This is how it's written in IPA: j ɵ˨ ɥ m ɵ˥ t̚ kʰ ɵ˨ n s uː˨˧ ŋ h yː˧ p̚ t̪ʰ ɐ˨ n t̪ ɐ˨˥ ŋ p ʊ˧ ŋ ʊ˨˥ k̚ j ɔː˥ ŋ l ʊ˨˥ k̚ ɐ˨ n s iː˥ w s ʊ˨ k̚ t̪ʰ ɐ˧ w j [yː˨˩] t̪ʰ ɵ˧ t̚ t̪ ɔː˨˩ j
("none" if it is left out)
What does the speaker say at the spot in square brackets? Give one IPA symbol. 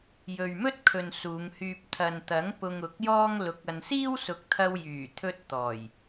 yː˨˩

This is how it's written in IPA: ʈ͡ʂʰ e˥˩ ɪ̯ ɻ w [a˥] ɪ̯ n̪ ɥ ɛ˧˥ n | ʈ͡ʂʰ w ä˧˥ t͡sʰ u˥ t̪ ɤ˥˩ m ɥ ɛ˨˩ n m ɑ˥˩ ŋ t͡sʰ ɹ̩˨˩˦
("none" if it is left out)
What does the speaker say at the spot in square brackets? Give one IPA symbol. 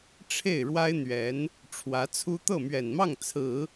a˥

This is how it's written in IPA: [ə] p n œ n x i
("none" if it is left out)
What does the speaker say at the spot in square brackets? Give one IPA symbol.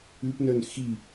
ʉ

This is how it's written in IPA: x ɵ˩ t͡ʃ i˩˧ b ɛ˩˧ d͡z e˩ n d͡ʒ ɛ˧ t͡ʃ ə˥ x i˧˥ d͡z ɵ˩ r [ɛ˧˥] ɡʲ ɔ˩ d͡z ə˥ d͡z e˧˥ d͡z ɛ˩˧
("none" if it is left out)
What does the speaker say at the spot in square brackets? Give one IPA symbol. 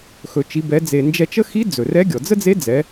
ɛ˧˥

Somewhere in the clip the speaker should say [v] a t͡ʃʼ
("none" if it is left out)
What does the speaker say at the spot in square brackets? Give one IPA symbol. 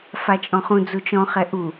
f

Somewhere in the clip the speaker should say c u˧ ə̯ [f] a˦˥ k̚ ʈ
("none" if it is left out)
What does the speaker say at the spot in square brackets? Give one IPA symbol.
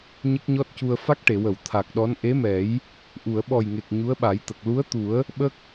f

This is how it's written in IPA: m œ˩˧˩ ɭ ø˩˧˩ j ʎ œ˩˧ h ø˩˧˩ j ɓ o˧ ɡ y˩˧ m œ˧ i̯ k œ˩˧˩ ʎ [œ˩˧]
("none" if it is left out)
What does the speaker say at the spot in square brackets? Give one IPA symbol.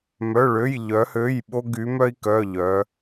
œ˩˧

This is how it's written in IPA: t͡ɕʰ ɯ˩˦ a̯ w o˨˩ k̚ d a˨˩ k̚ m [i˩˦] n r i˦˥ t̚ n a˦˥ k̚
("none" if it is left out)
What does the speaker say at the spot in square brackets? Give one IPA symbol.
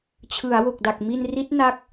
i˧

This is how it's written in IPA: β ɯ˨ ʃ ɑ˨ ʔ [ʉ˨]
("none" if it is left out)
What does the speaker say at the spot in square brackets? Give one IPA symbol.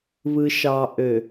ø˨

